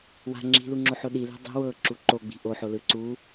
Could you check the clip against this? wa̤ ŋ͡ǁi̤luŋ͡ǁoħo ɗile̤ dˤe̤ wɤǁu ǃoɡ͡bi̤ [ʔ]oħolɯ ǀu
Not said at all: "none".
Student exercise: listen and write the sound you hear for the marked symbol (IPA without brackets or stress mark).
ʔ